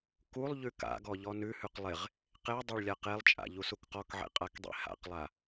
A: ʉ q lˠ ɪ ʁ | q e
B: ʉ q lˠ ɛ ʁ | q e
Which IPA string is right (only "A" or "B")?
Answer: A